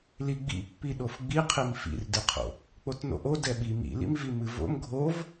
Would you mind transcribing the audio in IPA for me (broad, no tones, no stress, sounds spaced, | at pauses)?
l i ɡ͡b ḭ pː i ɗ o f ɡ͡b i qʰ i m f ḭ r d ɨ qʰ o̰ | k͡p o t n o̰ ʔ o d ɛ ɓ i m ḭ l ḭ m v i m ɨ v o̰ m ɡʱ o v